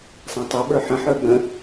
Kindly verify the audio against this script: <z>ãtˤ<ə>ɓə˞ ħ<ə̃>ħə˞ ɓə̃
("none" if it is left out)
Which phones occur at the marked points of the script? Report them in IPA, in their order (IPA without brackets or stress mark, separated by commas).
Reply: s, ə, ə̃